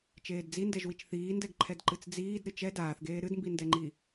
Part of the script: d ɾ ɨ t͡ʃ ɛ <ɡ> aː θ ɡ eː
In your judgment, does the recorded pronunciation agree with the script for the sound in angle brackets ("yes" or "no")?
no